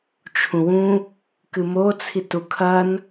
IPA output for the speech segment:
t͡ʃʰũwũ | kɨmo t͡sʰitukʰɐn

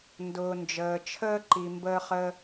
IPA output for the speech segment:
ndʊː˩nd͡ʒəː˩t͡ʃʰəː˦ ǃi˨mbəː˥χəː˥

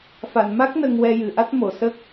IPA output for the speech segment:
fa˨˩˨nma˦˥k̚ nə˧ŋwɛ˧ jɨ˨˩˨ʔa˦˥t̚ mo˨˩˨sə˦˥k̚

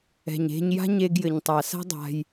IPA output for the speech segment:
ɛ̤˨ɲe̤˦ɲ ja̤˦ɲe˧ɡjɘ˨ɲtˤa˨ sa̤˦dˤa̤˧j

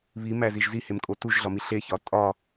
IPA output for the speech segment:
βimæziʒ zihemkʼo tuʒɮɒmi ɬeçɒ tʼɒ

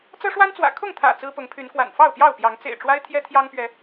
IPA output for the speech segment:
t͡sɤ˦ʂwa˦nt͡swä̰˨˩ kʰʊ˥˨ŋt̪ʰä̰˨˩ t͡sɹ̩˦pʊ˨˦ŋpʰy˨˦nkwa̰˨˩n fɑ˥˨ʊ̯pjɑ˥˨ʊ̯pjɑ˨˦ŋ t͡sḛ˨˩ɪ̯ʈ͡ʂwa˦ɪ̯ t̪ʰjɛ˦t̪ʰjɑ˦ŋpɥɛ˨˦

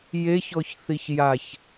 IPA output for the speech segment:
jeçɔçθiç jaç

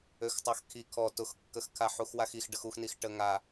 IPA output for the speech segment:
øxtˤaxkʰi kʰɔ tʊxkːəx kʰaħuxwaxix ɖəxuxnix ʈəŋa

